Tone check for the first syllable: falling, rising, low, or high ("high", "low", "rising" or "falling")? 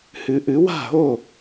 rising